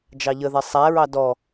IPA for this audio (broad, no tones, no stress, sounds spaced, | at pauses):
d͡ʒ ɑ ʎ ə ð ɛ sˤ æ ɹ ɑ d ɔ